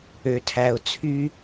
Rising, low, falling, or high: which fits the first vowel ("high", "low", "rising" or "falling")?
low